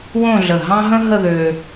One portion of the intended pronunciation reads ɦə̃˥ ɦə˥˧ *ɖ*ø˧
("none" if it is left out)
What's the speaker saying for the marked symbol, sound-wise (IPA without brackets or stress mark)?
ð